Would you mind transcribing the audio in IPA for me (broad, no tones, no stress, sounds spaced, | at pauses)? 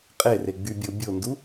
qʼ e r e ɡ͡b y bʲ o bʲ o n d u